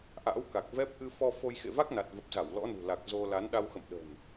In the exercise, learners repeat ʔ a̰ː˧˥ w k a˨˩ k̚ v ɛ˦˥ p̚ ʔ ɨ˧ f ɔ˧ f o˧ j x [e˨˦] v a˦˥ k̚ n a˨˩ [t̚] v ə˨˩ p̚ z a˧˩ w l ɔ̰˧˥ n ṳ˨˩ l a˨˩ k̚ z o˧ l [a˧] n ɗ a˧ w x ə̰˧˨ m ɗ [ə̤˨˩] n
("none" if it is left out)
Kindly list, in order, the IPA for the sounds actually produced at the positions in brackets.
ḛ˧˨, t̚, a˨˦, ə̤˨˩

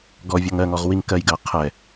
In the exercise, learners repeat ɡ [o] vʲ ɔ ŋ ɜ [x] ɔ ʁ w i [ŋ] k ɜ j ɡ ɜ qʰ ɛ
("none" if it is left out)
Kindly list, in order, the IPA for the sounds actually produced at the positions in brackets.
ɔ, ŋ, ŋ

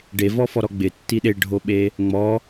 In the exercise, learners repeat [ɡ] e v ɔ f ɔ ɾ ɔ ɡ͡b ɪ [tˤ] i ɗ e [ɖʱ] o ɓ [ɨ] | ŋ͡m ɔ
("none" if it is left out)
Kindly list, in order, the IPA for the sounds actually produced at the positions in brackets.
ɖ, tː, ɖʱ, e

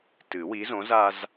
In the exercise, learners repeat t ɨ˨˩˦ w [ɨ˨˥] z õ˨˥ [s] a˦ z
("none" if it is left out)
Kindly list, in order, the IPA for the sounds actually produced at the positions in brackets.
i˨˥, z

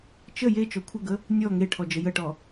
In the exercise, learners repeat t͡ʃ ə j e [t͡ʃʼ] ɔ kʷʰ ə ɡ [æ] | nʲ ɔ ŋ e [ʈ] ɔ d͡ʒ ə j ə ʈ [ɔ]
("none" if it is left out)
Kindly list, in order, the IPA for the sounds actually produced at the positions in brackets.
t͡ʃ, ə, ʈʰ, ɔ

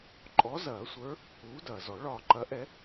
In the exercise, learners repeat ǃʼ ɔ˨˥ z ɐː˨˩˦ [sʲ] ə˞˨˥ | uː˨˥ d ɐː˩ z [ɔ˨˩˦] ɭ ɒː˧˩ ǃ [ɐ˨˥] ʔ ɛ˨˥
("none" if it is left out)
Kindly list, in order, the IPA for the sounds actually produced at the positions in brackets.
sʷ, ɔ˨˩˦, ɐ˨˥

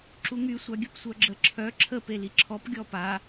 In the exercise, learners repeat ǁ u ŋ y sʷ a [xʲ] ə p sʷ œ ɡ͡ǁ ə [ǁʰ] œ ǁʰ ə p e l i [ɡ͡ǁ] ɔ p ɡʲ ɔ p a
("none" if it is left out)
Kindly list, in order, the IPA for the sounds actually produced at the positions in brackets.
ɡʲ, ǁʰ, ǁʰ

